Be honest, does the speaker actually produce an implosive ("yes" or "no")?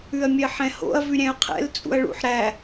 no